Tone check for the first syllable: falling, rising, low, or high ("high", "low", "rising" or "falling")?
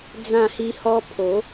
falling